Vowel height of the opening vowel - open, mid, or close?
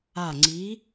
open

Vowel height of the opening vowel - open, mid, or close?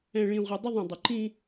mid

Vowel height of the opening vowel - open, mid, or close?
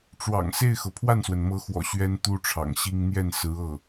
open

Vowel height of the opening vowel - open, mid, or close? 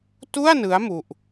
close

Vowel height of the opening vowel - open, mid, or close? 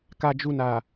open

